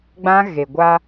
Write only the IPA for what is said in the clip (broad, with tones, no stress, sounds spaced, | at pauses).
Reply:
ɡ͡b ã˦ ɣ e˨ ɡʷ a˦